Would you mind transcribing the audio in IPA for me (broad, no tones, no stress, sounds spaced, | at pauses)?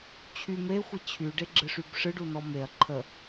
t͡ɕʰ y m e xʷ i t͡ɕʰ y ɖ e ɡ͡ǁ ɨ ʂ y b ʂ ɨ ɖ u n ɔ m e ɐ̯ ǃʰ ə